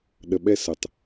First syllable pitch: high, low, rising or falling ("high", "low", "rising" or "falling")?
low